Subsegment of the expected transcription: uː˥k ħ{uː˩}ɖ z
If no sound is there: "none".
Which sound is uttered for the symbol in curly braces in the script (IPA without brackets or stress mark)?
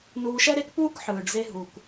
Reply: ɯː˩